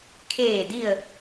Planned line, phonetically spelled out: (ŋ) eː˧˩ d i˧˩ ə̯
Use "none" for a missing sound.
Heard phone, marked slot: kʰ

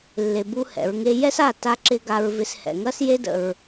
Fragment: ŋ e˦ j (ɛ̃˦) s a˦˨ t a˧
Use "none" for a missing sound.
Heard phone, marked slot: ɛ˦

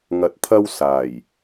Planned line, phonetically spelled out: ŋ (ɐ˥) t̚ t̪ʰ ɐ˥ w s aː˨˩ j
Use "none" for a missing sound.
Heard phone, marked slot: ɐ˧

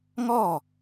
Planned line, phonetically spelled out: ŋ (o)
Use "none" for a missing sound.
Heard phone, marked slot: ɔ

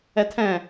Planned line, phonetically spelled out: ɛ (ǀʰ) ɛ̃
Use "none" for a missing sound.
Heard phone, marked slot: tʰ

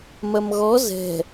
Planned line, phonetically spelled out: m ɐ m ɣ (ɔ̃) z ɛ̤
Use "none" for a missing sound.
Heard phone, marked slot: ɔ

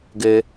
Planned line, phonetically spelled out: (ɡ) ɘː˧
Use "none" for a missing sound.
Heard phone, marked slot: ɡ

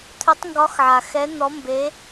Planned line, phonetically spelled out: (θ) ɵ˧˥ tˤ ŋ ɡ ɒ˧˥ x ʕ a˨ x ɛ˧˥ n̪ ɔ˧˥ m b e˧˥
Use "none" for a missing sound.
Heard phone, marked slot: t̪ʰ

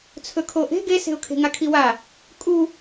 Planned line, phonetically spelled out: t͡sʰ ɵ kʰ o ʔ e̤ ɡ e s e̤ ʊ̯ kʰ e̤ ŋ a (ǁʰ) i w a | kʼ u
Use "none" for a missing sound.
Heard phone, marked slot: kʰ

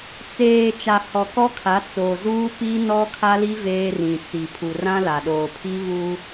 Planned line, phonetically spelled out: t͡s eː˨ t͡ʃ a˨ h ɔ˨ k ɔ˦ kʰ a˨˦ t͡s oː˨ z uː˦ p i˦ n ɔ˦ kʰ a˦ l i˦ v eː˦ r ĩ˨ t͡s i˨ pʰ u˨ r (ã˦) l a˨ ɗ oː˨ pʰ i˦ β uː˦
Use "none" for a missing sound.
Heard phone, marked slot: ã˦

